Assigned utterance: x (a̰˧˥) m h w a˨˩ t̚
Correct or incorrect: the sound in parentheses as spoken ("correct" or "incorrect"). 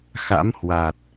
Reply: correct